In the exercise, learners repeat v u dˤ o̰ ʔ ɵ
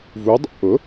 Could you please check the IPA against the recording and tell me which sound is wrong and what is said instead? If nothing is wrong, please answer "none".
ɵ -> ʊ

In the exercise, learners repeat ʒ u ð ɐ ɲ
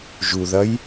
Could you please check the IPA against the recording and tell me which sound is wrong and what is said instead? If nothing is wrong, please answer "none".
ɲ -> j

